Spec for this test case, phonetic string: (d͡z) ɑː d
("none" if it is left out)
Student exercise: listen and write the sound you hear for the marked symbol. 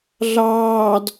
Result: ɮ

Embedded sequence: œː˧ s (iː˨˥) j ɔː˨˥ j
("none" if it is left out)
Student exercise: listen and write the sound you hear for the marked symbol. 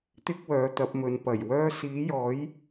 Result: iː˨˥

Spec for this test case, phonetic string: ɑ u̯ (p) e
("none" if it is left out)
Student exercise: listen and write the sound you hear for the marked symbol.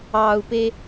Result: p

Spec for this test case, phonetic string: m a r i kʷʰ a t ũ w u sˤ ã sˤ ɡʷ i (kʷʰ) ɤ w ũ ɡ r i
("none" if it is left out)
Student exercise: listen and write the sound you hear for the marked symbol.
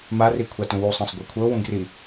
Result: kʷʰ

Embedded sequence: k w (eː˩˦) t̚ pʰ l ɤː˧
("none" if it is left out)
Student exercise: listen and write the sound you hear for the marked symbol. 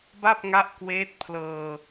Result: eː˦˥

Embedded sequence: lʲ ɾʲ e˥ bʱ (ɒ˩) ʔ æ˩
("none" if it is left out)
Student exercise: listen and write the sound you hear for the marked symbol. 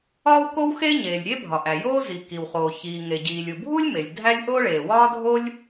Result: ɒ˩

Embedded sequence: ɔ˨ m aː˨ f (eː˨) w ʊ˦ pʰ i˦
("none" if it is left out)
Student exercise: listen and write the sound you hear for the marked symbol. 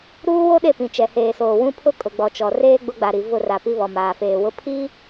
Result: eː˨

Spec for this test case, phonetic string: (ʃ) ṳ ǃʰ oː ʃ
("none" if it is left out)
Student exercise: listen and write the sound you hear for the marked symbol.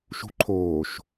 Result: ʃ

